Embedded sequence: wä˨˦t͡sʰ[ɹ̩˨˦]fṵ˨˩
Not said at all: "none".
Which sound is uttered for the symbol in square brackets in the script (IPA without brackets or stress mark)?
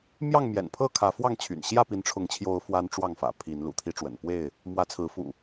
ɹ̩˨˦